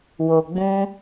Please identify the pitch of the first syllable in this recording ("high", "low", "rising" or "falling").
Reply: low